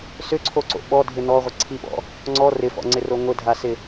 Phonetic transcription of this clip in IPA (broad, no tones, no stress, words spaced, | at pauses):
sʏǀʰoǀo̰ ɓɔdʱɪ nɔʁʷə ǀʰiɓɔ̰ | ŋ͡ǀɔ rɪfɔ̰ŋ͡ǀɪro ŋʷɪdʱasɪ